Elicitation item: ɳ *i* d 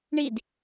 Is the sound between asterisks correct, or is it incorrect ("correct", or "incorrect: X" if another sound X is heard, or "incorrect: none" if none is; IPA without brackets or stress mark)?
correct